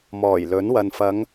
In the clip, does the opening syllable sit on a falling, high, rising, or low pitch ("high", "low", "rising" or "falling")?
low